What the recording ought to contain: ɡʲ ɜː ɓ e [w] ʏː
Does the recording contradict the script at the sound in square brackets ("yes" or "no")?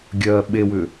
no